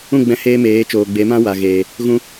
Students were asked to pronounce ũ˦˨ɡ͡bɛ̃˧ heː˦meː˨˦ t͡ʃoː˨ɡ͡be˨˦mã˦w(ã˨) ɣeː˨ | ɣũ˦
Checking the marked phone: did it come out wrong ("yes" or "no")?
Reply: yes